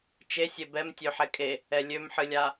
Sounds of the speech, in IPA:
t͡ʃ e sʲ e b ɛ m tʲ ø ħ ɛ kʼ e | ɛ lʲ ø m ħ ɨ lʲ a

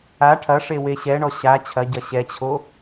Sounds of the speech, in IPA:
a ʈʰ ɐ ʂ e w e ɕ ɛ ɳ ɔ ɕ a t͡ɕʰ ɐ ɟ ɐ ɕ ɛ t͡ɕʰ o

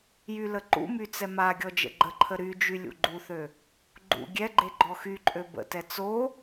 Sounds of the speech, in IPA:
j y l ə ǃ ṵ m y t͡s ɛ m a ɡʲ ɔ d͡ʒ ə̰ ɡ͡ǃ ə ǃʰ ə ɾ y d͡ʒ y lʲ ṵ ɡ͡ǃ u θ ø | ɡ͡ǃ ṵ ɡʲ ɛ ɡ͡ǃ e ɡ͡ǃ ɔ x y ǃʼ ø b ə̰ t ɛ t͡s o

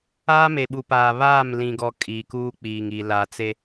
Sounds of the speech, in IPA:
aː˦ m e˨ ɓ u˨ p aː˨ β aː˦˨ m l ĩ˨ ɡ ɔ˨ kʼ iː˨ k uː˦ k͡p iː˨ ŋ i˨ l a˨ t͡s e˦

